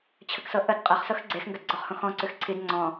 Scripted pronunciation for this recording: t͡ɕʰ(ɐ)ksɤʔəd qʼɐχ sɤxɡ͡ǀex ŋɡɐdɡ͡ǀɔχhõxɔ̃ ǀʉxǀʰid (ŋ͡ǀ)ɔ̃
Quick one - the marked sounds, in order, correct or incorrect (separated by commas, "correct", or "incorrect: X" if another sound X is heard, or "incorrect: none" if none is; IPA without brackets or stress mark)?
incorrect: ə, correct